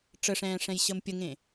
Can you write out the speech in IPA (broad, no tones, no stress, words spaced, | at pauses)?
ʈ͡ʂəʂɛ̃ː ʂɛ̃jɕəmpʲəŋẽ